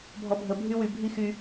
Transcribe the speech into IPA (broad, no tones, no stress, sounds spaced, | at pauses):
bʱ ɔ bʱ ə bʱ y w y bʱ i x y